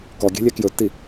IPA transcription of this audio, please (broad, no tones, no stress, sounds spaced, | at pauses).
k ɔ ɡʲ ɛ̤ lʲ ɛ k j ɵ tː i